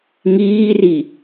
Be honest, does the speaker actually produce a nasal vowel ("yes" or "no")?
no